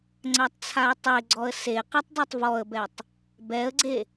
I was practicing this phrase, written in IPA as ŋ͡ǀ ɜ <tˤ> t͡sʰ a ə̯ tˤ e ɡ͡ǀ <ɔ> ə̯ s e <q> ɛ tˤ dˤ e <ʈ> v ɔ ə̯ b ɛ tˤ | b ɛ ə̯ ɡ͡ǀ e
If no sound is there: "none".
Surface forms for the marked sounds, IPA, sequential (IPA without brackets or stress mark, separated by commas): tˤ, ɔ, q, tˤ